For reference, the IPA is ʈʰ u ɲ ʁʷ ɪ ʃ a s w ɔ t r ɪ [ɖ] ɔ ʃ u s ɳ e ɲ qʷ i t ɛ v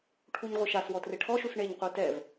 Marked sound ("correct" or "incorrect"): incorrect